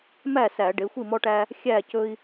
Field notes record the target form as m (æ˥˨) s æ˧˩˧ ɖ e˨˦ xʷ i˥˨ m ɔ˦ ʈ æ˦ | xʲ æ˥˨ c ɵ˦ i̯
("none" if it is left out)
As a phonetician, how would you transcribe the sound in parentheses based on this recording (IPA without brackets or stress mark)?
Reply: æ˥˨